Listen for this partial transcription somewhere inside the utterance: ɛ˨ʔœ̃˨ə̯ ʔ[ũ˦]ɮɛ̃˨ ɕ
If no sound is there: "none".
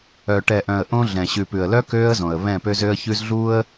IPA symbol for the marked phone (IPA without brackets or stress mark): õ˦